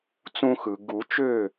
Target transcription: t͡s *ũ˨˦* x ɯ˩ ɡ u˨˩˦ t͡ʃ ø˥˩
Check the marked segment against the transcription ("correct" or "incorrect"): incorrect